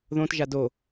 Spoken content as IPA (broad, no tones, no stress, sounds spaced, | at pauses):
ð õ t ʒ a d o